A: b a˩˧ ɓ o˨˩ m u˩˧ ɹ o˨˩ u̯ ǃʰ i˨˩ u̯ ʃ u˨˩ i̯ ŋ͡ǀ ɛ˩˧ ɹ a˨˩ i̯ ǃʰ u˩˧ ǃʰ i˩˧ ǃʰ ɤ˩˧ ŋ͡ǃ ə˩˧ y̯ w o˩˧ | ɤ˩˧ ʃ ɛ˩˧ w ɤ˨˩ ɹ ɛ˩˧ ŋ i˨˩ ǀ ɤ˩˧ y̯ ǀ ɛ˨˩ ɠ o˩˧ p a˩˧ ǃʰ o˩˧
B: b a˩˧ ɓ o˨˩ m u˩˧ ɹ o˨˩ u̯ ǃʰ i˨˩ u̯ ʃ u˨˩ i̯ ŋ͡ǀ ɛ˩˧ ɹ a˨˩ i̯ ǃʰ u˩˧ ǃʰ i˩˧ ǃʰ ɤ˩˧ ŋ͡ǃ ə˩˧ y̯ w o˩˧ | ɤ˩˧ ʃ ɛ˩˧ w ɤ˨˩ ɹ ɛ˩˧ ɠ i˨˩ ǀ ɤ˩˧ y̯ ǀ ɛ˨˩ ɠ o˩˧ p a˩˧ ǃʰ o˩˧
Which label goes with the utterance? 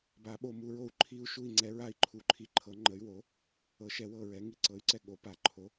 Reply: A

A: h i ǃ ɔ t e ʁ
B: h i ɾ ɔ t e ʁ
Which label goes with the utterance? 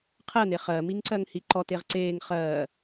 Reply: A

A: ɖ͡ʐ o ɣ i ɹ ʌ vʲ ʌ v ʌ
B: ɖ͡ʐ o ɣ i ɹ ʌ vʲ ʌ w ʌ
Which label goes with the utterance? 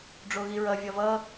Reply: A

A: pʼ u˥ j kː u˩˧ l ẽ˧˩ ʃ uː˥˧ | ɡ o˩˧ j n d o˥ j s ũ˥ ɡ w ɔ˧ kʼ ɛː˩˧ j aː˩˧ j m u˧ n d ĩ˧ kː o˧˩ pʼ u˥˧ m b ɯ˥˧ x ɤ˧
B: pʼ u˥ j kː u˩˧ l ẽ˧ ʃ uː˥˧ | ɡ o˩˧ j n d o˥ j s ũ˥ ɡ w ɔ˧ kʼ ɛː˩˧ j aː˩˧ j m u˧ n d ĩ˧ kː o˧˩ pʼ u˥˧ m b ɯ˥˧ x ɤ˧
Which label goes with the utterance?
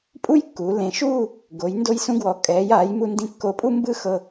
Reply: A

